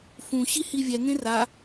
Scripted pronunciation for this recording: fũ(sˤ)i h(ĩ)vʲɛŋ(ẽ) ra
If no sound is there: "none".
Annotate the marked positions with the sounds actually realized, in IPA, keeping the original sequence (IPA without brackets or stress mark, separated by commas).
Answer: ɕ, i, ẽ